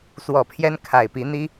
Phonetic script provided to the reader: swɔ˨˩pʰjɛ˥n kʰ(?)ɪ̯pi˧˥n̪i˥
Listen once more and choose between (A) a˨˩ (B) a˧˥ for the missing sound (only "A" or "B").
A